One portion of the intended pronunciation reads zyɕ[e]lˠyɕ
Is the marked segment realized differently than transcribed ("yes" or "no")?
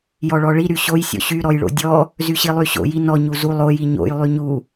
yes